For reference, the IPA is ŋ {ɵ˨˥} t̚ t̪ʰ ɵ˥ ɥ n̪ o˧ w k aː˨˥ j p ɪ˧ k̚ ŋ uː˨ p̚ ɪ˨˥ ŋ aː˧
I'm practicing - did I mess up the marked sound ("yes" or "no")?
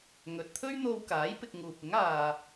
yes